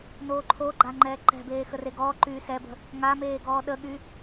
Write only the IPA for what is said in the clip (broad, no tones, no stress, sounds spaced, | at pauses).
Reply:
n oː ǃʰ o ɡ͡ǃ a ŋ͡ǃ ɛː ǃ ɛ̤ b eː x ə r e ɡ ɔː ǃ yː s ɛ b ə̤ | ŋ a m eː ɡ ɔː ɗ ə ɠ y